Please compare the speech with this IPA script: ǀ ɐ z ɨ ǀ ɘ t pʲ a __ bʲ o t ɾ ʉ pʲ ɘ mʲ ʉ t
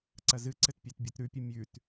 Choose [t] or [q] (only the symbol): t